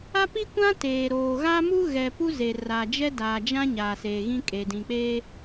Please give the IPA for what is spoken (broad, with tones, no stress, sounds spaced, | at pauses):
a˦ p i˦ kʷ ã˦ t eː˨ ɾ oː˨ ɣ a˦ m u˦ ɣ ɛ˨ p u˦ z e˨ r a˨ d͡ʒ ɛ˦ d aː˨ d͡ʒ ã˦ ɲ aː˨ s eː˨ ɣ ĩ˦ kʼ eː˨ d ĩ˨ k͡p eː˦